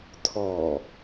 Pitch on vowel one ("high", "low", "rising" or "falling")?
low